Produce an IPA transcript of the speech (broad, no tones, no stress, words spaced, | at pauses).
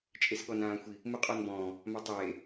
t͡ʃʼesɠɔnãːxʷi | muqʼɔnbɔ̃ː | matˤeː